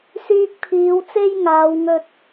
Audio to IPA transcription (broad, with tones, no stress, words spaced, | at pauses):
syː˧k̚pʰiː˨˧wt͡se˥j ŋaː˨˧wŋɵ˧t̚